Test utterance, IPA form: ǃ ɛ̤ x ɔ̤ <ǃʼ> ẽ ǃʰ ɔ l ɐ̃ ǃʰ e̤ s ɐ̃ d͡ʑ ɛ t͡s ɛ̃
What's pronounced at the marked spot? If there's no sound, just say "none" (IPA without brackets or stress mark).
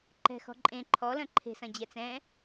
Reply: ǃʼ